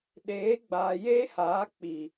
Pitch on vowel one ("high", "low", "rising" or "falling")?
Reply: rising